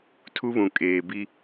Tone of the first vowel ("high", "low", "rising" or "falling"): high